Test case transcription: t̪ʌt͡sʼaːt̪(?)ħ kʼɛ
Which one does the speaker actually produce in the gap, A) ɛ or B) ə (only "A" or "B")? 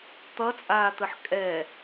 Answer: B